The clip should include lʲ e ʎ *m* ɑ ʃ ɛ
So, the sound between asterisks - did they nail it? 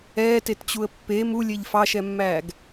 no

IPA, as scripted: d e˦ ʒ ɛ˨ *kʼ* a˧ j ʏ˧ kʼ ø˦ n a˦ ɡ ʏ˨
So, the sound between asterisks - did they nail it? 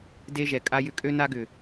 yes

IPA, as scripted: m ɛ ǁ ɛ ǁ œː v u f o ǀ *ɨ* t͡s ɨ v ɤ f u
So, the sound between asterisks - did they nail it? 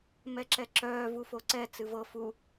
no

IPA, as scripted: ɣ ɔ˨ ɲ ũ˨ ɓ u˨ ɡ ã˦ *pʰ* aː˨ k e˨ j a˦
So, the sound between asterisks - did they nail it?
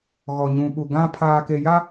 yes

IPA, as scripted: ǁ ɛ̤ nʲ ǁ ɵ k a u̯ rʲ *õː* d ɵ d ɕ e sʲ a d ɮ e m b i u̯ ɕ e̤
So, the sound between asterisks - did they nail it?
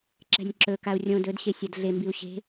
no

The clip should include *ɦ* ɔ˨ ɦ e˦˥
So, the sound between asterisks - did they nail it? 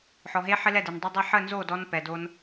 no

